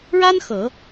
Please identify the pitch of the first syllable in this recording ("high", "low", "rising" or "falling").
high